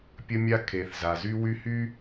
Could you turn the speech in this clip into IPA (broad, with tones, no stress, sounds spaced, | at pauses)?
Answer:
pʲ ə˦ mʲ a˦ kʰ e˨ θ z a˨ z y˦ w y˦ h y˦